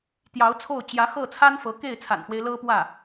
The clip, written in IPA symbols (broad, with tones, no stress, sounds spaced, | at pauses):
t̪ j ɑ˧˥ ʊ̯ t͡sʰ o˥˩ ʊ̯ t͡ɕ j ä˧˥ x ɤ˥˩ t͡sʰ a˥ n f ɤ˧˥ k e˥˩ ɪ̯ t͡sʰ a̰˨˩ n x w e˦ ɪ̯ l ɤ˥ p w ä˥˩